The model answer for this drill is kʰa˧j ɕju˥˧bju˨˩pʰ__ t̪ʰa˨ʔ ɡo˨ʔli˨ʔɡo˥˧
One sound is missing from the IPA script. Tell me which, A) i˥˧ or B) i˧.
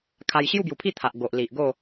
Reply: A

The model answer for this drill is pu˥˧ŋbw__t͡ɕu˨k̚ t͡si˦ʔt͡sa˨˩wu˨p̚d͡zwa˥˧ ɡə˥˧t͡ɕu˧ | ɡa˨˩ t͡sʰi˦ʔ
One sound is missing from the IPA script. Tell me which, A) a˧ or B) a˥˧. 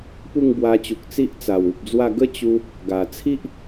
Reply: A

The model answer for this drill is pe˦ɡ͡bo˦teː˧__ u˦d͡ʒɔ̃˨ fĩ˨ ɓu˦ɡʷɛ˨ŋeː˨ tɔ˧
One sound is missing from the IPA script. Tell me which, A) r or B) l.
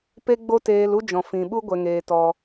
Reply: B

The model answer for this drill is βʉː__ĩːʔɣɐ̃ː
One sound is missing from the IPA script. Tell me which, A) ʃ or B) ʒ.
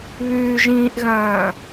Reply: B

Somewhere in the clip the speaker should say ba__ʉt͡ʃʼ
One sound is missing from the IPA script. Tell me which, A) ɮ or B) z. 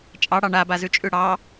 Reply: B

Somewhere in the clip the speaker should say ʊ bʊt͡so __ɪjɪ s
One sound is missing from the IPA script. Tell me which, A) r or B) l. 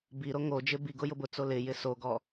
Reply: B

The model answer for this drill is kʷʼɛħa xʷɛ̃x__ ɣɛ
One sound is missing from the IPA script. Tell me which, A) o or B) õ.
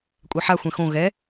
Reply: B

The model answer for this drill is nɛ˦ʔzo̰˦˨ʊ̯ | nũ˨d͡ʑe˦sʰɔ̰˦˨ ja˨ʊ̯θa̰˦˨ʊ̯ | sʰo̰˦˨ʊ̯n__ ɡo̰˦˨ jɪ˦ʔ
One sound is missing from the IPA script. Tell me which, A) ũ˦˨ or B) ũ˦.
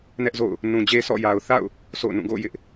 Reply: A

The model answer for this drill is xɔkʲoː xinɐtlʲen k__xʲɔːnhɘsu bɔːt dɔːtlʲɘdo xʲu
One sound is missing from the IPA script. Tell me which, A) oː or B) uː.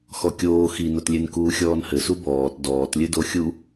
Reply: B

